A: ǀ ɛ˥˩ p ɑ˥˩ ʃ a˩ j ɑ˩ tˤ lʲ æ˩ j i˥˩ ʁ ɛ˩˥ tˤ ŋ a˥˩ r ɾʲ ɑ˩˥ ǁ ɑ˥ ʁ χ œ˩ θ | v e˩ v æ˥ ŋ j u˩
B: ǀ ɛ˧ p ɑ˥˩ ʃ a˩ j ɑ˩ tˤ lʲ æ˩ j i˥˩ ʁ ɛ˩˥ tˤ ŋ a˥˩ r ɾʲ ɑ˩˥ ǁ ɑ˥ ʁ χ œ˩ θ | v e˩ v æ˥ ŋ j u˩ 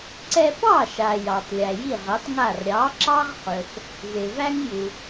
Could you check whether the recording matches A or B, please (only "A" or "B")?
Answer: B